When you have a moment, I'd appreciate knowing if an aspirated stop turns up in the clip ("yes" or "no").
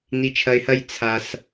yes